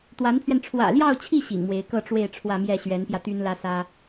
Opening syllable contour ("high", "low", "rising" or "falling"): rising